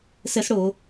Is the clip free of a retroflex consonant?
no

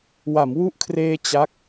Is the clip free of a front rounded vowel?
yes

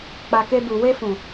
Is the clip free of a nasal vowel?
no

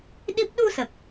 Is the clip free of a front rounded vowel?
yes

